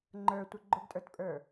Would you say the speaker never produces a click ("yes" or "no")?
no